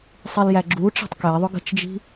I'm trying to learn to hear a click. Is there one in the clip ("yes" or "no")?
yes